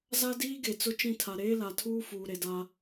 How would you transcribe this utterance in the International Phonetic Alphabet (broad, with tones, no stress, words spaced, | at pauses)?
za˦diː˦ɡe˨ t͡sʊ˦t͡ʃĩ˦˨tʰa˨ ɾeː˦la˨tʰuː˦ fuː˨ɾe˨da˦